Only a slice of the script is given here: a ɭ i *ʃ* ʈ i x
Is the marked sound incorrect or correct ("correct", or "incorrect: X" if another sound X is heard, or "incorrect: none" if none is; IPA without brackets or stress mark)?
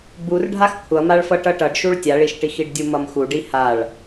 correct